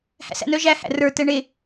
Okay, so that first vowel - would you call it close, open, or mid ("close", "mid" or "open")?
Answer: open